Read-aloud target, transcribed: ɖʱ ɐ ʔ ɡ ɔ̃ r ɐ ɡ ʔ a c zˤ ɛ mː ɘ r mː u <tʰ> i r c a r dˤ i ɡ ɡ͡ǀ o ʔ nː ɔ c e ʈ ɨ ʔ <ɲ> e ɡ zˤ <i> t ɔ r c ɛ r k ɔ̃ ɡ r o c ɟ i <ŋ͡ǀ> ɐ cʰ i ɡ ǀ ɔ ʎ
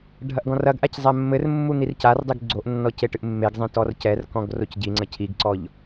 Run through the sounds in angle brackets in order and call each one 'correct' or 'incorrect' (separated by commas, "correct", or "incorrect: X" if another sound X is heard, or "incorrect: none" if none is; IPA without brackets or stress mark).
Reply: incorrect: n̪, incorrect: mː, incorrect: ĩ, correct